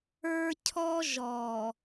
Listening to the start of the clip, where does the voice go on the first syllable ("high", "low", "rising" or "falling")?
high